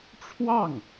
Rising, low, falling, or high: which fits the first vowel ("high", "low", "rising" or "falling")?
falling